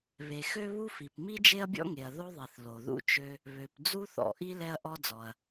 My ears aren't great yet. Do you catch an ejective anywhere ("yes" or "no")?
no